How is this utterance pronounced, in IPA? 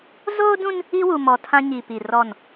z oː˦ d ũ˦ n | i˦ w u˨ m ɔ˨ tʰ ã˦ ɲ i˨ p i˨ r ɔ˦˨ n

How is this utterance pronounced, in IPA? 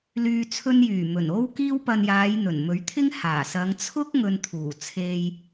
l yː˨ t͡sʰ ɵ˧ n j yː˨˩ m ɵ˨˩ n o˧ w k iː˧ w p ɐ˨ n j aː˨˧ j n̪ ɵ˨˩ n m ɵ˨˥ ɥ t̪ʰ ɪ˥ ŋ h aː˨˩ s ɐ˨˧ ŋ t͡sʰ ʊ˥ k̚ ŋ ɵ˨ n t̪ʰ uː˨˩ t͡sʰ e˧ j

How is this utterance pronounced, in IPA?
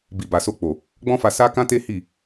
b i˨ b a˨ s o˧ k͡p o˨ | ɡ͡b ɔ̃˦ f a˧ s a˦ k ã˦ t e˦ h i˦˨

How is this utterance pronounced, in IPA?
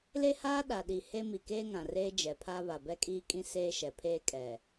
l e˦ h aː˦ ɗ a˨ ɗ i˨ h e˦ m i˨ k eː˦ ŋ ã˨ r eː˦ d͡ʒ ɛ˨ pʰ a˦ β a˨ b ɛ˦ kʼ iː˦ kʼ ĩ˦ s eː˦ ʃ ɛ˨ pʰ eː˦ kʼ ɛ˨

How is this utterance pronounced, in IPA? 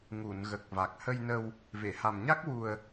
ŋ u˨˩˨ n ɣ ə˨˩ k̚ v a˨˩ k̚ h ə˧ j n ə˧ w | v e˨˩˨ h a˨˩ m ɲ a˦˥ k̚ w u˧ ə̯

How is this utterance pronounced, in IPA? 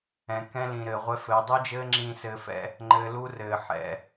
ɛ̃˨ k ɛ̃˦ l ĩ˨ ɾ ɘː˨ ʁʷ ɛ˦ f ɘː˨˦ dˤ u˦ d͡ʒ ɘː˦ ŋ͡ǁ ĩ˦˨ s ɘː˧ f ɛ̰˦ | ŋ͡ǃ ɘː˧ l u˦ r ɘː˨ ħ ɛ̰˨

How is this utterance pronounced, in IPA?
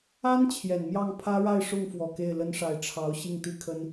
a˥ n t͡ɕʰ j ɛ˨˩ n m j ɑ˥˩ ŋ pʰ ä˥ ɻ a˥˧ ɪ̯ ʂ ʊ˥˩ ŋ f w ɔ˨˩ k e˥˩ ɪ̯ l ə˥ n ʂ a˧˥ ɪ̯ ʈ͡ʂʰ ɑ˧˥ ʊ̯ ɕ i˥˩ ŋ t̪ i˥ kʰ ə˥ n

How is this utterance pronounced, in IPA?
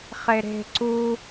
χ e ɾ e̤ ǀ u

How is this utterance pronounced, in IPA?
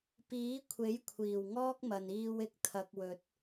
p iː˨˥ kʷʰ e˨˥ j kʷʰ iː˨˩ w ŋ ɔː˥ k̚ m ɐ˨ n iː˧ w ɪ˨ k̚ t̪ʰ ɐ˨ k̚ w ɵ˨ t̚

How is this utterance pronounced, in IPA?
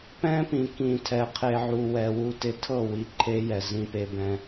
p ɛ̃˦ p ĩ˨ k ĩ˨ tʰ ɛ˨ qʰ e˨ ʕ u˨ w ɛ˨ w u˦ t ɪ˦ tʰ ɤ˦˨ w i˨ ǃʰ e˦ j ɛ˨ z ĩ˦ p e˦ b ɛ̃˦

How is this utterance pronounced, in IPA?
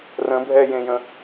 r ə̃ bʱ ɛ j ẽ j ə̃

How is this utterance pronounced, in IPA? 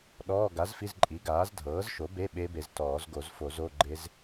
ɗ ɔː˧˥˧ ɡ a˩˥ z f i˧˥˧ z ǃʼ i˩˥ ɡ aː˩˥ z dʱ ɤː˩˥ z ʃ o˩˥ b e˧˥˧ ɓ e˦˥ b e˨ z t ɔː˨˩˦ z ɡ o˨˩˦ z f o˨˩˦ z o˧˥˧ ɡ͡ǃ e˦˥ z

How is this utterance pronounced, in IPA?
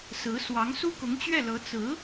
s ɹ̩˧˥ s w ɑ˧˥ ŋ s u˥ k ʊ˧˥ ŋ t͡ɕ ɥ ɛ˥˩ l ɤ˧˥ t͡s ɹ̩˧˥

